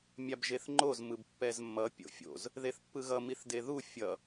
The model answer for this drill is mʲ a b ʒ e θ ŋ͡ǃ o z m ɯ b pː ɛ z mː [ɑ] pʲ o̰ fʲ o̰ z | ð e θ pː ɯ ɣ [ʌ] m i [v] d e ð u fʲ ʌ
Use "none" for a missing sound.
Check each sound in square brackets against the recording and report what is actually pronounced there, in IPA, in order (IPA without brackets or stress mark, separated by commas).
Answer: ʌ, ʌ, θ